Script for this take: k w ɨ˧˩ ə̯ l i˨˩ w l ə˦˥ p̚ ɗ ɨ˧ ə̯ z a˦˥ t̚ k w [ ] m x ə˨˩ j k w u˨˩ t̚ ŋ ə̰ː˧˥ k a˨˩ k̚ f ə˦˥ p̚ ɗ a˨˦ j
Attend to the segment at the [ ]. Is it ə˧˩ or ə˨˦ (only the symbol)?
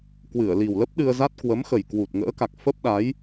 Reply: ə˨˦